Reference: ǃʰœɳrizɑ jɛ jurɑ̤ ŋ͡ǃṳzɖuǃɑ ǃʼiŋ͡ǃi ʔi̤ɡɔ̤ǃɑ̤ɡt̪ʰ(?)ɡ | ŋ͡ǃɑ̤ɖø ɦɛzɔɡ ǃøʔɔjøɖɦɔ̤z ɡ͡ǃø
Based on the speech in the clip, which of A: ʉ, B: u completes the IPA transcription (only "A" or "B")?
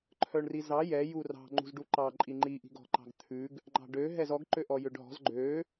A